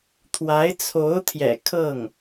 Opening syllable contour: rising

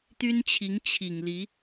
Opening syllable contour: high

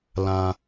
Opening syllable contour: low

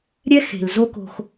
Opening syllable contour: high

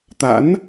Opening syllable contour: rising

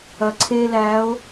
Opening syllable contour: low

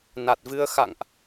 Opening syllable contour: low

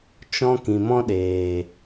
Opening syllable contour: high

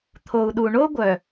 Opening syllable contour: low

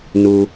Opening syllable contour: low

